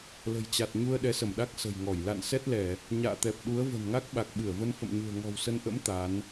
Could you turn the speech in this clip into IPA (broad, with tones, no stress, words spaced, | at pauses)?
lə̤˨˩jt͡ɕa˨˩t̚ ɲu˧ə̯ɗɛ˨˦sə˧˩mɗa˦˥k̚ sə̤˨˩jŋɔ˧˩j la̰˧˨nsɛ˦˥t̚lɛ˧˩˨ | ɲa̰ː˧˨t̪ɛ˨˩p̚ɗu˨˦ə̯ və̤˨˩nŋa˦˥k̚ɓa˨˩k̚ɓɨ˧˩ə̯ və˧nfə̰˧˨mɲṳ˨˩ə̯ŋɔ̤˨˩w sə˧n ʔə̰˧˥m t̪a˨˦n